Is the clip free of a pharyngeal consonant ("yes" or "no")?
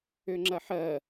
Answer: no